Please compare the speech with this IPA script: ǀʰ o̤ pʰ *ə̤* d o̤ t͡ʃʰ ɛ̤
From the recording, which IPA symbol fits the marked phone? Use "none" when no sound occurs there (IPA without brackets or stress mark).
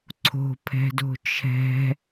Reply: ɛ̤